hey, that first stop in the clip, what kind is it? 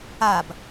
plain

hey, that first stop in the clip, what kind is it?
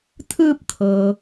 aspirated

